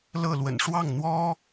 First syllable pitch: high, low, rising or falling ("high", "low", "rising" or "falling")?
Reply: falling